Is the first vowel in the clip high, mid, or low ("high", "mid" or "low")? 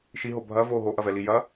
high